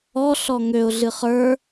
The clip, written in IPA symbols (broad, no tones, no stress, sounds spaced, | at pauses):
ɔ ɬ ɔ ŋ ø ʊ̯ ɮ ɨ χ ə˞